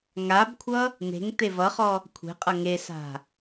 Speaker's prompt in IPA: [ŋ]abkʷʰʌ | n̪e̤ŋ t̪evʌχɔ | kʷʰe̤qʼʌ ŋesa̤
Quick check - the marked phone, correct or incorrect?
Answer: correct